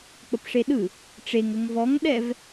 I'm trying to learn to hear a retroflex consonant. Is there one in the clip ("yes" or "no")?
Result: yes